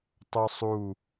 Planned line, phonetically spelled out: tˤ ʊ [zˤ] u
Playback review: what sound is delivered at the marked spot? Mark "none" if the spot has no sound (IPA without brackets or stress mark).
sˤ